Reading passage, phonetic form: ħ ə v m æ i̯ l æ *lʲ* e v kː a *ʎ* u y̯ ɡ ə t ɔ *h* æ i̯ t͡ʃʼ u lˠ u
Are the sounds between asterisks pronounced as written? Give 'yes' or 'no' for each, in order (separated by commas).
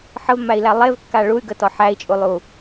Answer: no, no, no